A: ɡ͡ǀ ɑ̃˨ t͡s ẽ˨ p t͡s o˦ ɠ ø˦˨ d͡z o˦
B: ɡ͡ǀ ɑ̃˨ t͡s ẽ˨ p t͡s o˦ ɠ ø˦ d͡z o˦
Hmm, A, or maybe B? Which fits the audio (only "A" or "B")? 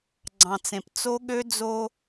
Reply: B